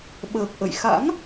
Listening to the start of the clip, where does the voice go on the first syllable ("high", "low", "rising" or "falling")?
low